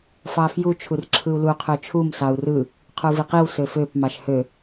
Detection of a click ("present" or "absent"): present